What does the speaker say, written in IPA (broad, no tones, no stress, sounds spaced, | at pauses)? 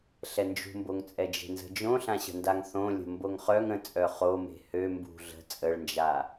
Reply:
ɬ ɛ n d͡ʒ ṳ m b o ŋ t͡sʼ ɛ d͡ʒ e̤ n z ə̤ d͡ʒ õ ɬ ã ɕ ə̤ n d a ŋ θ õ lʲ ə̤ m b o ŋ χ œ ŋ ə̃ t͡sʼ œ χ o m e̤ h ø m b ṳ ɮ ə̤ t͡sʼ ə ɭ n d͡ʒ a